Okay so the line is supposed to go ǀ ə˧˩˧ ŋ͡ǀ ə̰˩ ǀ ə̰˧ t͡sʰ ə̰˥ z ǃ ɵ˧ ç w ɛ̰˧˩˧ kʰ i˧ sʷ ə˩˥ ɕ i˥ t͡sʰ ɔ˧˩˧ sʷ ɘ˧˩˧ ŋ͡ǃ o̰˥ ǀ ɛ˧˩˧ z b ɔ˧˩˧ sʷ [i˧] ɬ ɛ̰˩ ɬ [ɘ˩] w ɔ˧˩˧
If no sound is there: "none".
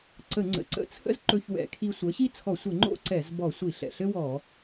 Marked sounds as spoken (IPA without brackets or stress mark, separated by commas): i˧˩˧, ɘ˥